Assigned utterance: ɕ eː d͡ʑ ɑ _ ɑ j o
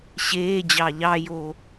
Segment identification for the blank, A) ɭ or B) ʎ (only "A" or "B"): B